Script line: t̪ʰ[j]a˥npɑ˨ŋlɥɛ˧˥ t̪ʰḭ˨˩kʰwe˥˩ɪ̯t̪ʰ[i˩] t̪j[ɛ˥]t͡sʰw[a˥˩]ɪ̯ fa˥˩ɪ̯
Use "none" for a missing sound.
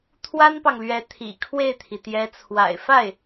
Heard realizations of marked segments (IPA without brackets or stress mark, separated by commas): w, i˩, ɛ˧˥, a̰˨˩